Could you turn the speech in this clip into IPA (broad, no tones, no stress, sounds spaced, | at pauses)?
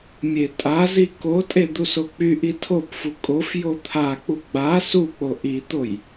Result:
mʲ e tʼ a z i k o tʼ e d̪ u s o k͡p y ʔ i tʰ o p f u kʼ o f j o t̪ʰ a k͡p u ɡ͡b a s u k͡p o ʔ i t̪ o j